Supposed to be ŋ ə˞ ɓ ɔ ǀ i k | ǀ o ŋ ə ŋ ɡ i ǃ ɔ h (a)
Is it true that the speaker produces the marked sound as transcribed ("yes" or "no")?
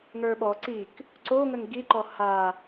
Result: yes